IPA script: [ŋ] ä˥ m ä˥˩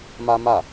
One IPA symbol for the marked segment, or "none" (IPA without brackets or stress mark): m